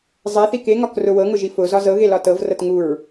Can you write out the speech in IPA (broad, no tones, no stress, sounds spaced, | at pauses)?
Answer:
zˤ ɛ θ i k e ŋ ɒ k r ʊ w ɤ ŋ ʊ ʒ i f ʊ z ɒ z ɤ ɣ e l ɒ t ɤ v r ɤ t ŋ u ɹ